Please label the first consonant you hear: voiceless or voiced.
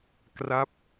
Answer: voiceless